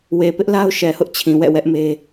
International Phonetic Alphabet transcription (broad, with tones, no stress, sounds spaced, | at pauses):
w e˨ p ɪ˦ ʔ l a˦ ʊ̯ ʃ ɛ˨ h ʊ˦ ʔ t͡ɕʰ ĩ˨ w ɛ̰˦˨ w ɛ˦ ʔ m e˦